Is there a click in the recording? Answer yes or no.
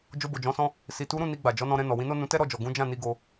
no